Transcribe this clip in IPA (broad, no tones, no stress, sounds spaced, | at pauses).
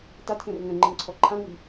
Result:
t a t k ɛ̃ r ŋ ɛ̃ ŋ͡ǃ ɯ ŋ ǀʰ ɔ ǃʰ ã ŋ͡m i